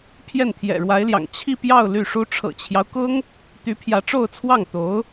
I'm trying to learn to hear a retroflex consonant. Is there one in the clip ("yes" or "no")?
yes